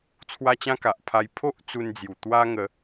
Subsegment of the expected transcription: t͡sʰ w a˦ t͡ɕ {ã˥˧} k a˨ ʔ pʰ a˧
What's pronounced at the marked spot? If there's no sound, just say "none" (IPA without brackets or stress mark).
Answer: ã˦